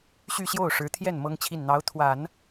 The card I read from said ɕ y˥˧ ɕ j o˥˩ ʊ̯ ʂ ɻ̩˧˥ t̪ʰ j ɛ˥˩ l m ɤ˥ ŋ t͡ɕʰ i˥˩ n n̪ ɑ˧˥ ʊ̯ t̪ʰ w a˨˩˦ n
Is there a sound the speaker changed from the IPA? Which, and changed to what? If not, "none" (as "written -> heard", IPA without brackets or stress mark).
l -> n